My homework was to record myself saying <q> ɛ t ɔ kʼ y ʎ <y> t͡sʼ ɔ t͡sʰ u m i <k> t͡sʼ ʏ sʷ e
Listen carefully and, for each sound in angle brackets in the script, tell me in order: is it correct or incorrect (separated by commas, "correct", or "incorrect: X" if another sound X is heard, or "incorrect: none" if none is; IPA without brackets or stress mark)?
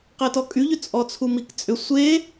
correct, incorrect: ʏ, correct